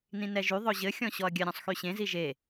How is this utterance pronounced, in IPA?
nĩnɛʒy ðˤɵʑɘ xʲɔ̃ɕɔɐ̯ɡʲɘ ɾʲɔ̃sˤxyɕẽ ziʒe

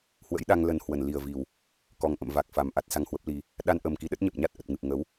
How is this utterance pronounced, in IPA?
hwə̰˧˥jɗa˧ŋ lə˧nhwə˧˩n li˨˩ə̯vi˨˩w | kɔ˨˩ŋʔə̰˧˨mva˨˩k̚fa˨˩m ʔa˦˥t̚sa˧ŋhwə˦˥p̚li˧ | ɗa˧nʔə˨˩m ki˨˦ɗə˦˥t̚ɲə˨˩p̚ɲa˦˥t̚ ʔə˨˩t̚ŋɨ˨˩p̚ ŋə˨˦w

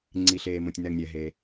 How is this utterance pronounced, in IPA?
ŋ͡ǀi˩ɬeː˩mõ˩tʲ nɛ˩ŋnʲɛ˩ɦeː˩

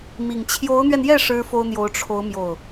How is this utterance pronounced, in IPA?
mi˨˩ŋ t͡ɕʰjo˧˥ʊ̯n̪ɥɛ˧njɛ˥˩ ʂɻ̩˥fo˥ʊ̯n̪jo˧˥ʊ̯ ʈ͡ʂʰo˧˥ʊ̯ mjo˥˩ʊ̯

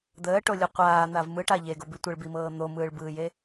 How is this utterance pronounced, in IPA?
d̪əːʈolʲu qʷaːn̪av mɯʈa ʎeɡobi tʷəɭbimɤː n̪omɯːɭbɯːje

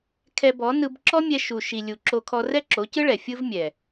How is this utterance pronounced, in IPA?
kʰɛ˧bɔ˨˦nɯ˧b ǁɔ˦mʲɛ˧ ʃu˨ ʃi˨lʲu˨ǁo˧kʰɔ˧ rɛ˦ǁo˨˦cɯ˦ɭɛ˨ fʲɯ˦vmʲɛ˨

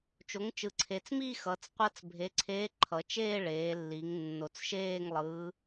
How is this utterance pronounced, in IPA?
t͡ʃo˩˥ŋt͡ʃɯ˨˩ǀʰe˩˧t͡s mi˥˧xʌ˩˧t͡s qʷʌ˧˥t͡sbʱe˩˥ǀʰeː˧˥ ǃʰʌ˩˧t͡ʃeː˥˧ ɭeː˩˧lːi˩˧ŋ nːo˨˩t͡sʃeː˥˧ŋ lˠɯː˧˥

